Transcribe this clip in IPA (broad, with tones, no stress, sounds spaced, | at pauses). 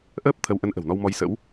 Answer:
ʔ əː˦˥ p̚ t̪ʰ ə˨˦ w ʔ ə˨˦ n ʔ ə̤˨˩ w n ɔ˧ w m ɔ˧ j s ə̰˧˥ w